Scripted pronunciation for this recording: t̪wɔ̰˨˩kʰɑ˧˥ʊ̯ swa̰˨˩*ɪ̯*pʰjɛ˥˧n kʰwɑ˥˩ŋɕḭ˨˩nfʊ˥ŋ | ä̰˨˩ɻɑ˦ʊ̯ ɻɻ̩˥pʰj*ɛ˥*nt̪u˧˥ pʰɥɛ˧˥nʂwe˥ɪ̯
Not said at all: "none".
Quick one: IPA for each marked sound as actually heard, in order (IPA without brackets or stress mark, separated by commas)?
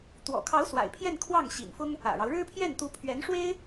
ɪ̯, ɛ˥˩